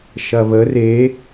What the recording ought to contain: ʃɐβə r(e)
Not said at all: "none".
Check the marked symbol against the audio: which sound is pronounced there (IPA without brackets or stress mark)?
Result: e